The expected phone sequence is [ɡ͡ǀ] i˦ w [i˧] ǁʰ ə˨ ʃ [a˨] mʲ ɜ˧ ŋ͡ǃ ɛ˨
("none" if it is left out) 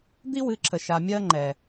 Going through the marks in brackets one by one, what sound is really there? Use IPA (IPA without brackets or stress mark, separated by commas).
d̪, ɨ˧, a˨